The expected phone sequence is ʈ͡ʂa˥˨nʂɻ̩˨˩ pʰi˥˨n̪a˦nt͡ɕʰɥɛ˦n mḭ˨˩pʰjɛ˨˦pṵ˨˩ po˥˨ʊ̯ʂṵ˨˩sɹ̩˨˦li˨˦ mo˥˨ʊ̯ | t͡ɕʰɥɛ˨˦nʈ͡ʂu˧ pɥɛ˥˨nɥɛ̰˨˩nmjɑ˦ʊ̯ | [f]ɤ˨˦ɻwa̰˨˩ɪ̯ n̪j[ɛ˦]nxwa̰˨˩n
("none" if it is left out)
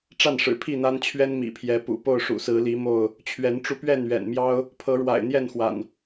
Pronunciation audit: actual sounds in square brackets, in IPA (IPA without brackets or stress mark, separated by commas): pʰ, ɛ˥˨